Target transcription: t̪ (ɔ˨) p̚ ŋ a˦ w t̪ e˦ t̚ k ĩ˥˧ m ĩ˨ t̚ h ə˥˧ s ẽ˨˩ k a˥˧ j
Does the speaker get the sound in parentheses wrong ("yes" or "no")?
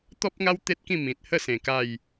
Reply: yes